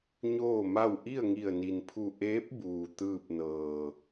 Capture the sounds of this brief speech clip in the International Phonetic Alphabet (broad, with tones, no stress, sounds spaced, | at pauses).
ɲ oː˥˨ m a˥˨ w ʔ i˥˨ ə̯ ŋ i˧˩ ə̯ n i˩ n pʰ u˧˩ ʔ eː˧˥ p̚ b uː˩ t̪ ɯː˥˨ p̚ n ɤː˧˩